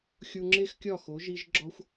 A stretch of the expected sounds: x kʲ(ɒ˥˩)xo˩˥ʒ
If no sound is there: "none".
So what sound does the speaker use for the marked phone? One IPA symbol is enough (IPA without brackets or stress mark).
ɒ˥˩